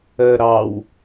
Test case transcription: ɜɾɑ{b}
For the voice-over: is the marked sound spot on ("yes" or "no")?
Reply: no